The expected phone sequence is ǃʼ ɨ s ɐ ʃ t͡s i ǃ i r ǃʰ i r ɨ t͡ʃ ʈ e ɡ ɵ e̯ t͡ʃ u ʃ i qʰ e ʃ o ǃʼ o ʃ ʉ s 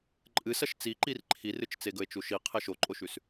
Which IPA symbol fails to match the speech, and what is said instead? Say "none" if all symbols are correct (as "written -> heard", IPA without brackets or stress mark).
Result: ʈ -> t͡s